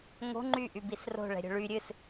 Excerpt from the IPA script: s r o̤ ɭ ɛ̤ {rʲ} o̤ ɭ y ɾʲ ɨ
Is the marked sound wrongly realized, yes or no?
yes